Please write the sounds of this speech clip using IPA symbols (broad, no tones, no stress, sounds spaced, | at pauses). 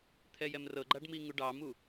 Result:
t̪ʰ ɛ j ɛ m r ɤ ɡ͡ǃ a ɖ m i ŋ u ɖ ɑ m u